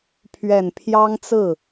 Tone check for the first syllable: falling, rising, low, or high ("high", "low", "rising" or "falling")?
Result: low